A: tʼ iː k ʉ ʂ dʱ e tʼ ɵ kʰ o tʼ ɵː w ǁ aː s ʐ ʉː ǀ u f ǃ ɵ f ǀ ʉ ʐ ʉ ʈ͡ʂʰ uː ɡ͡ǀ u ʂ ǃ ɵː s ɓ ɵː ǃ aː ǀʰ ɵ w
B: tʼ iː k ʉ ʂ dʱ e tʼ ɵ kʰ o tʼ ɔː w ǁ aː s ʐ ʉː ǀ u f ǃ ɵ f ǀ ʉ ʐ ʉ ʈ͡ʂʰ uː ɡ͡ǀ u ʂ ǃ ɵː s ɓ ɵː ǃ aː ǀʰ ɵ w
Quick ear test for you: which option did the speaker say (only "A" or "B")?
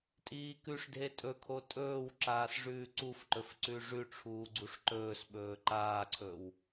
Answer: A